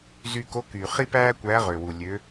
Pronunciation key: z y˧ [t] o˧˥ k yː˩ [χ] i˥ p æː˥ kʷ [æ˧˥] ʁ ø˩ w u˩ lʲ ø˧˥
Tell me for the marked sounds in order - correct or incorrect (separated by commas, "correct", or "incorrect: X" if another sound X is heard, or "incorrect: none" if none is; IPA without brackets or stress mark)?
incorrect: k, correct, correct